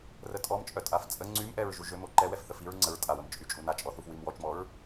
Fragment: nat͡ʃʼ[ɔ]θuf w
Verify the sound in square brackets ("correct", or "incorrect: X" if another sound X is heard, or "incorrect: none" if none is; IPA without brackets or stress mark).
correct